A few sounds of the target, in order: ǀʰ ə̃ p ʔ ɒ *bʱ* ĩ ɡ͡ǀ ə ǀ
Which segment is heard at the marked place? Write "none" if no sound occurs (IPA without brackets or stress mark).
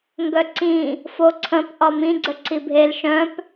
m